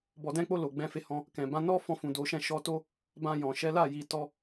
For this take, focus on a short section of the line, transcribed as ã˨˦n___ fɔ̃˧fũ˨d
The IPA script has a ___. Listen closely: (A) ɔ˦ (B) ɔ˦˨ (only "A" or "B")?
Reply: A